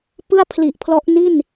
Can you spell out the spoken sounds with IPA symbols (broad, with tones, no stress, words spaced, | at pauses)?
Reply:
pɯ˥˩a̯pʰli˨˩ʔpʰlɔ˦˥ʔ ni˥˩n